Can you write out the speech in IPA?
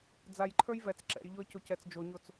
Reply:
d͡z a j ǃʰ ə˞ j v ɛ t͡s ǁ ɛ̰ j ʎ o ə̯ c o c ɛ t͡s d͡ʒ o ɲ o t͡s

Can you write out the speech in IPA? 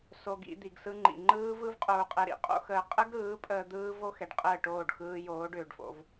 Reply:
s o˧ ɡ ḭ˧ d̪ i˨ ɡ s ɯ˧ ŋ͡ǃ ḭ˨ ŋ͡ǃ ɯː˦ v ɯ˦ v qʼ oː˧ qʼ ɛ˧ ɾ ḭ˧ qʼ o̰˦ x əː˧ qʼ ə˦ ɡ ɾ ɯː˨˦ pʼ əː˧ d̪ ɯː˦ v o˦ x ɛ˨ ɖ qʼ əː˦˨ ʈ oː˦˨ ɖ x ɯː˧ j oː˨˦ ɖ ʏː˨ ɖ f o̰˧ v

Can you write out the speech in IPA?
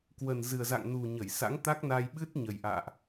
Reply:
k w ə˨˩ n z ɨ˨˩ ə̯ z a̰˧˨ ŋ n u˨˩ ɲ ə˧˩ j s a̰˧˥ ŋ t̪ a˦˥ k̚ n a˧ j ɓ ɨ˦˥ t̚ ɲ ə˨˩ j ʔ a̰ː˧˨ ʔ

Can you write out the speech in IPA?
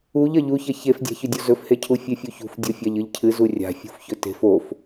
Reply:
u ʎ ɐ ʎ u ç ɐ ç e f dʲ a̤ ç ɵ dʲ o z ɵ f h e cʰ u fʲ e fʲ u ç ṳ f dʲ o fʲ a ʎ ɨ ʎ cʰ ɨ z u rʲ a̤ fʲ ṳ f ç ɵ t e̤ f o f

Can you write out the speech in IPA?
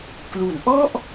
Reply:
k l u˩˦ n ʔ ɔ˥˩ ʔ

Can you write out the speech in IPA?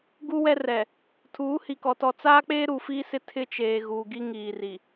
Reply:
ɡ u˦ w ɛ˦ r ɛ˨ | tʰ uː˨˦ h i˨ k ɔ˨ t ɔ˨ t͡s aː˦ k͡p eː˦ ɾ u˨ f iː˦ s ɪ˦ tʰ ɪ˦ t͡ʃ eː˨ ɣ uː˨ ɡ i˦ ŋ iː˨ r i˨

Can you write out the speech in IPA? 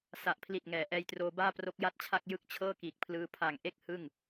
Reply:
s a˨˩ ʔ pʰ l i˨˩ t̚ ŋ ɛː˩˦ ʔ ɛː˧ j t r oː˧ b aː˥˩ p r o˦˥ k̚ j a˥˩ t̚ t͡ɕʰ a˥˩ k̚ j ɯ˥˩ k̚ t͡ɕʰ ɤː˥˩ k iː˨˩ k̚ pʰ l ɯː˧ pʰ a˨˩ ŋ ʔ e˥˩ k̚ h ɯ˥˩ ŋ

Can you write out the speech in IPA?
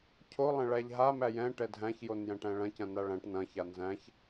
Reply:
cʰ o lˠ ɐ̃ ɭ æ ʎ ɦ a m æ j ɛ̃ ʈ ɛ dʱ æ̃ ç j o n j æ̃ ʈ æ̃ ɭ ɐ̃ c ɐ̃ n a ɭ æ̃ ʈ n ɐ̃ ç a n z æ̃ ç

